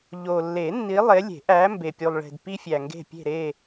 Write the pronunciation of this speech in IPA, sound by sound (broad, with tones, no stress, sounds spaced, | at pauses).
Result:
ʎ o˨ lː e˨˩˦ nː i˨˦ lˠ e˨˦ lʲ e̤˨˩˦ ʔ æ˨˦ m b e˨ pʲ u˨ lˠ ɭ e̤˨ d p i˦ fʲ æ˨ ŋ ɡ e̤˦˨ pʲ e̤˦˨ ɾ e˦˨